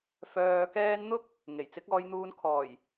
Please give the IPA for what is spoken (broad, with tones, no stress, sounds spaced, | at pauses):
f œː˨ k ɛː˧ n n̪ ʊ˥ k̚ | ŋ e˨˩ j t͡s ɪ˨˥ k̚ ɔː˧ j n̪ uː˧ n kʰ ɔː˨˩ j